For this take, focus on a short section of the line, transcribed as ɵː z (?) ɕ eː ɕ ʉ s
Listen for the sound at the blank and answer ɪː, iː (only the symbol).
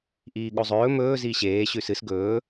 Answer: iː